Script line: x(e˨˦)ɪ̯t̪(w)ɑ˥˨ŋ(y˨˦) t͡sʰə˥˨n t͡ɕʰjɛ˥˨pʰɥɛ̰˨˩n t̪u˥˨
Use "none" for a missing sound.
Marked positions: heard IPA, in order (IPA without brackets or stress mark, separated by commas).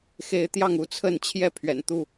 e˨˦, j, u˨˦